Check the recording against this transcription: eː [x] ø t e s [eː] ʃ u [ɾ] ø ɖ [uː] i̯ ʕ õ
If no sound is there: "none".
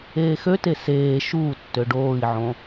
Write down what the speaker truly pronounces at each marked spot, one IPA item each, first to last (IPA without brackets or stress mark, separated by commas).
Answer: x, eː, tː, oː